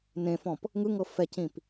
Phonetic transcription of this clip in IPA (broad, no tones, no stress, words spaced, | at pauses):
nẽfɔ̃p | ŋɯŋɤ fɛcĩp